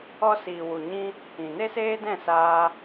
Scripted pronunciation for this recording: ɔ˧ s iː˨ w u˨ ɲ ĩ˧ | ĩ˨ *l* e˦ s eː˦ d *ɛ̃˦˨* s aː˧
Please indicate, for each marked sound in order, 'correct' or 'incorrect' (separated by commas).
incorrect, correct